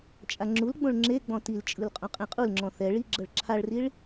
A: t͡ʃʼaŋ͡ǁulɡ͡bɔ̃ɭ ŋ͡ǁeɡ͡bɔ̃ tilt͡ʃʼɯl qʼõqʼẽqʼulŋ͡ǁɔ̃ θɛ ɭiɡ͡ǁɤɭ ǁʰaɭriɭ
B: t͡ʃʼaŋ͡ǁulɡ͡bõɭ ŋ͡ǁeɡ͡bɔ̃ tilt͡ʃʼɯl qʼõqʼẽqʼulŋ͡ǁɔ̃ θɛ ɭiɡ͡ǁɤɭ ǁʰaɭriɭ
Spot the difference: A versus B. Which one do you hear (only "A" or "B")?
B